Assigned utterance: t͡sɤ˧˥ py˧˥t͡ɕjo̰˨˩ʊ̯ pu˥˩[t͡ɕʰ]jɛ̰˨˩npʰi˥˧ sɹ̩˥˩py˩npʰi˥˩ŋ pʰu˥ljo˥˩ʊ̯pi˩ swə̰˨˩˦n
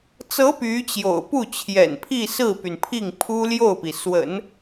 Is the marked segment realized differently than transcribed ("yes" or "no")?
no